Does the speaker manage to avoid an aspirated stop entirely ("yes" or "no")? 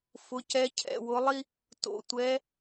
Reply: no